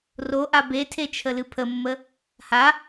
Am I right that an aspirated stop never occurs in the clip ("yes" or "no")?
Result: no